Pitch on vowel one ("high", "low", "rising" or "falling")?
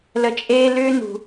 low